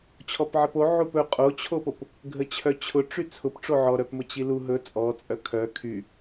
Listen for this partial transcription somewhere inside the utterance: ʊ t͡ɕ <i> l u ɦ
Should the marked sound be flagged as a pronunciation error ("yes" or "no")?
no